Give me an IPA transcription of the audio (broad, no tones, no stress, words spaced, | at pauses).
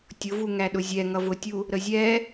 tʲʊvu ŋæɗʊzʲɛ ŋʌvʊtʲu | ɾəzʲɛ